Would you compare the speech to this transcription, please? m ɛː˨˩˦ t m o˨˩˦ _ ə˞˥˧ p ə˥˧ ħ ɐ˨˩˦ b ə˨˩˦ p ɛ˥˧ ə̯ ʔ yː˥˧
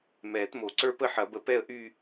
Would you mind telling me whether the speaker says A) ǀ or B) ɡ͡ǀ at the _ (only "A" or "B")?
A